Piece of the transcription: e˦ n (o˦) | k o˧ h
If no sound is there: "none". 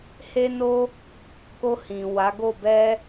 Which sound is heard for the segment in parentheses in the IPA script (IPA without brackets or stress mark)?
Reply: o˦